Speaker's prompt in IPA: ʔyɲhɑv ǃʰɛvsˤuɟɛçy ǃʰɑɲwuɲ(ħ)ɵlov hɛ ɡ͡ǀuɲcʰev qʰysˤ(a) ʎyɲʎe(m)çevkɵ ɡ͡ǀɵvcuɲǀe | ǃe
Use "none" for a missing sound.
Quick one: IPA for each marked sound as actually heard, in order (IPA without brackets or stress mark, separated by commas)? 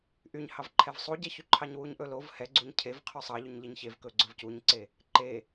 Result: ʔ, ɑ, ɲ